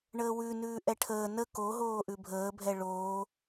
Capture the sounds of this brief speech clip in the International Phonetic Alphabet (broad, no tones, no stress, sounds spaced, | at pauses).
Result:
ɳ əː w ʉ n ʉː ʔ ɛ ʈʰ əː n ə k o ɦ oː ʔ ʉ bʱ əː bʱ ɛ ɭ oː